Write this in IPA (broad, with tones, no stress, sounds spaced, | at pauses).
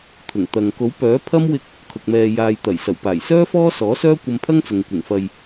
t̪ʰ ʊ˨˩ ŋ t̪ ɐ˨ ŋ k o˨˥ w p œː˨˥ pʰ ɐ˥ m w ɪ˧ k̚ | kʰ ʊ˨ k̚ m ɛː˨ j aː˨ j t̪ ɐ˨˩ j s ɐ˨˩ w p aː˨˩ j s œː˥ f ɔː˥ s ɔː˨˥ s œː˥ kʷ ɐ˧ m pʰ ɐ˥ ŋ t͡s ʊ˨ ŋ kʷ ɪ˨˩ ŋ f ɐ˨ j